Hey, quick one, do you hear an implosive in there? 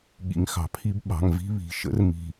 yes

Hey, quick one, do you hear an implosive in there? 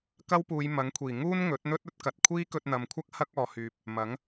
no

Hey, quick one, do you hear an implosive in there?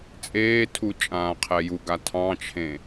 no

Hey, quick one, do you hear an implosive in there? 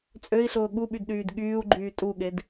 yes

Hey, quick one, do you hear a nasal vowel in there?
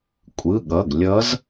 no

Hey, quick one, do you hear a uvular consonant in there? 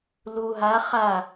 yes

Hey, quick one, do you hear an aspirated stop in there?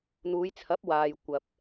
yes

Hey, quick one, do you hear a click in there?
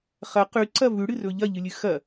yes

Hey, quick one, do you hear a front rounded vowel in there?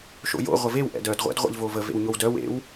yes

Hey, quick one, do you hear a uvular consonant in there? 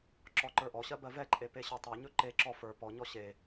no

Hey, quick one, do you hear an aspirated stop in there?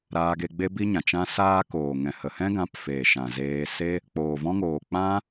no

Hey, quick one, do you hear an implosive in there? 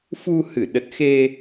yes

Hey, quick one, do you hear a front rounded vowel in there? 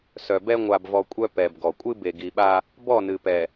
yes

